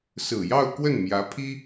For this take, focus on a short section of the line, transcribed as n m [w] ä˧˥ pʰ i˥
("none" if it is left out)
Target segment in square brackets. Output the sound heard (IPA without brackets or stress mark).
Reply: j